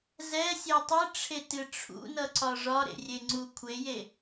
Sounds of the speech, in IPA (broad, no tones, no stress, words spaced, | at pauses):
zɛsʲe tˤɨʈ͡ʂʰetɨ ʈ͡ʂʰṵnʌǀɒ ʐɒɾḛrʲeŋ͡ǀu kʷʰeje